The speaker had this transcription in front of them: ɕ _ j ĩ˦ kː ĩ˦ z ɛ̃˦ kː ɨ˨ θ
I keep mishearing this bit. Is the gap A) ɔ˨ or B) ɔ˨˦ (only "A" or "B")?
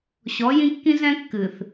B